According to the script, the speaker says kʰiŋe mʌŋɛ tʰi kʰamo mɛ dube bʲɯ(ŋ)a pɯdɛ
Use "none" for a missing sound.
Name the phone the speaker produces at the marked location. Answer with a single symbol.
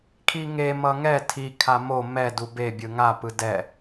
ŋ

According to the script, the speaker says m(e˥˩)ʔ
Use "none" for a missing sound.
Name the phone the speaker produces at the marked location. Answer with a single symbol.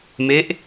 e˦˥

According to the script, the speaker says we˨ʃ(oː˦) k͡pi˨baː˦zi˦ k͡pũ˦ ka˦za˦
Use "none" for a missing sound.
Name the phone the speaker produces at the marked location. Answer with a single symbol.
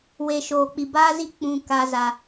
oː˨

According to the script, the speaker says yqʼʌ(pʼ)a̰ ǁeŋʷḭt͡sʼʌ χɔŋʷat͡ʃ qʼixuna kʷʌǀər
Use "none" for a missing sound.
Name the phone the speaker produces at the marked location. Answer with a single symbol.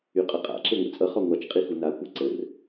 qʼ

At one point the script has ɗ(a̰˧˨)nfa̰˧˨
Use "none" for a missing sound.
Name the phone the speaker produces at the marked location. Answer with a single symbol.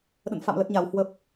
ə̰˧˨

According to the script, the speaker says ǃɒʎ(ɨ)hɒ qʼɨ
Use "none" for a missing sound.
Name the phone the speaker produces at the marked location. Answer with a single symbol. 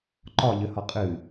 ɨ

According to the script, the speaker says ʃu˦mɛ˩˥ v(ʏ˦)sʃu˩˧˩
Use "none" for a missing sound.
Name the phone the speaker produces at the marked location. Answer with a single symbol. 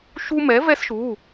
ɛ˦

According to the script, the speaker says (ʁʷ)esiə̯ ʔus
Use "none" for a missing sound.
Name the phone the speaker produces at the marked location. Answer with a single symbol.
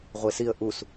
ʁʷ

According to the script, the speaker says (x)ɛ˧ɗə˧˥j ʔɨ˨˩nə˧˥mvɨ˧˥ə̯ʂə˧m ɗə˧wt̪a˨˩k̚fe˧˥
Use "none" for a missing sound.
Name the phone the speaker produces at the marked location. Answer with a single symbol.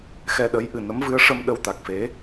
x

